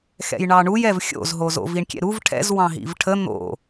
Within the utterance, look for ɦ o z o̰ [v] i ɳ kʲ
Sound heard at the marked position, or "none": v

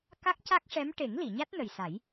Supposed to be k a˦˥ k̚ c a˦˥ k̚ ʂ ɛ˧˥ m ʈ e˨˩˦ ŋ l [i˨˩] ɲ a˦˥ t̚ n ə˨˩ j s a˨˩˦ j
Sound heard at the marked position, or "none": i˨˩˨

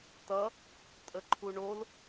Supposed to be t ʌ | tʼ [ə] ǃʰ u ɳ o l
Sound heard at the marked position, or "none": ə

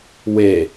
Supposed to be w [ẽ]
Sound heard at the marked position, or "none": e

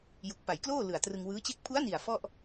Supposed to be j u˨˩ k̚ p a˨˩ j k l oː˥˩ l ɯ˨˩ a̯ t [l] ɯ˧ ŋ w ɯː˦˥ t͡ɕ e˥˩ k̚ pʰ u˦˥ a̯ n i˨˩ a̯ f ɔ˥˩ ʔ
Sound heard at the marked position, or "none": r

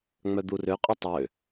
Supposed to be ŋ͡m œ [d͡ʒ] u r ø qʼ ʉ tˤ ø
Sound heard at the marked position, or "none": d̪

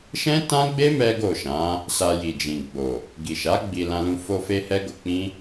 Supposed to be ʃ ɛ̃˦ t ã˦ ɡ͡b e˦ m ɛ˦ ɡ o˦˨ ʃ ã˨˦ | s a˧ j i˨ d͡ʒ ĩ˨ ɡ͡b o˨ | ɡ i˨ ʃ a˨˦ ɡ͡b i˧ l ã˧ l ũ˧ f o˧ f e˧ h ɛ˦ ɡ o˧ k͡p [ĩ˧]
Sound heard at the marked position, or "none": ĩ˦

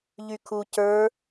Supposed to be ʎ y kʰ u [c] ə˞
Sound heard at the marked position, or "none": c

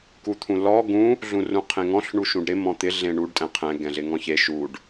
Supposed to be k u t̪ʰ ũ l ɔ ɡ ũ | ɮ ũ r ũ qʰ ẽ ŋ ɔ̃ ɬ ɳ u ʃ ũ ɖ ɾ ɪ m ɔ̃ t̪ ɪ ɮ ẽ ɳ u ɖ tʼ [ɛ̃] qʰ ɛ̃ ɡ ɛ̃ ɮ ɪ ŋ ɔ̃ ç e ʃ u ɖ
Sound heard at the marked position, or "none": ɛ̃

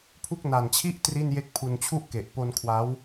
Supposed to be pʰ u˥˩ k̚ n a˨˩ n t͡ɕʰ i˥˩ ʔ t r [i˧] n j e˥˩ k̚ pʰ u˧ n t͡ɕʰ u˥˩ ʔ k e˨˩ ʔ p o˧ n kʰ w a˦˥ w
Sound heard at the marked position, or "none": i˥˩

